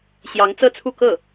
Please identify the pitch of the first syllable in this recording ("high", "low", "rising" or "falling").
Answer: rising